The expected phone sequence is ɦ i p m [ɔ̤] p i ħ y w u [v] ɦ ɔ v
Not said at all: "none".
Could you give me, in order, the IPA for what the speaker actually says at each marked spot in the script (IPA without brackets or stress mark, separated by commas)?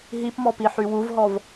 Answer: ɔ, v